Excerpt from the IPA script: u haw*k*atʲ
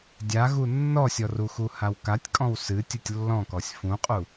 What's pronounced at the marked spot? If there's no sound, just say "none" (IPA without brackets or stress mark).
k